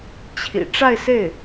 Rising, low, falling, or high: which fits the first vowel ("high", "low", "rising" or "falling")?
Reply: low